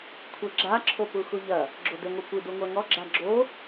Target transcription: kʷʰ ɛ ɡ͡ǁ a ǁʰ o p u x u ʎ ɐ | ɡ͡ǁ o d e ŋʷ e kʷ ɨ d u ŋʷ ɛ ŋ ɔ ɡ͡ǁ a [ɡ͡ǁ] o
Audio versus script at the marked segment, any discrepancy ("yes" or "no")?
no